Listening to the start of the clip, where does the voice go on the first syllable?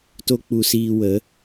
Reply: high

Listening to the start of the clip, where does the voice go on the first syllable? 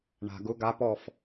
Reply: low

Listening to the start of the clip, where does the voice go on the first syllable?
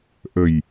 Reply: low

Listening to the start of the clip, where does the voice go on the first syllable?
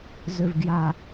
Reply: low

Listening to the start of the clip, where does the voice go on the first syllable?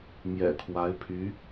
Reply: low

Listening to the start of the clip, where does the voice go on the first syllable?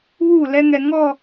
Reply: falling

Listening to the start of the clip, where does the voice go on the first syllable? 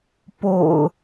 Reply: low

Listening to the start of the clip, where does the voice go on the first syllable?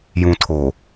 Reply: low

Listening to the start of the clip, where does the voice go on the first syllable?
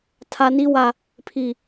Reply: high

